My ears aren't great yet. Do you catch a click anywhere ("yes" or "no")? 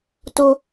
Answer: no